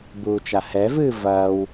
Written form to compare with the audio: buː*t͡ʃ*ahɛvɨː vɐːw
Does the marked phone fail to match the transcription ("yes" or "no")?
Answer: no